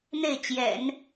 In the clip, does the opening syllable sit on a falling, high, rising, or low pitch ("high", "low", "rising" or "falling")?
falling